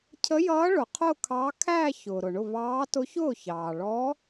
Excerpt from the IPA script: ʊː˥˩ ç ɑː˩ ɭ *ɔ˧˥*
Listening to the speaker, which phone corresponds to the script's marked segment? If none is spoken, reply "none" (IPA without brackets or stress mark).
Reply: ɔ˧˥